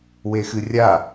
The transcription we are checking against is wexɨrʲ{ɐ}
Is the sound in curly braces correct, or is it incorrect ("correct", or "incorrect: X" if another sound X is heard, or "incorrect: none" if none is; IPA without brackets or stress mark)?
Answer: incorrect: a